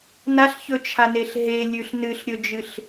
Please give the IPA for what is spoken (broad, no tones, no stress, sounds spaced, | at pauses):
n a ɬ ç ɵ t͡ʃʰ a n e ɬ ɦ e lʲ ʉ ɬ n ɨ ɬ ɾʲ ɵ d͡ʒ ɨ ɬ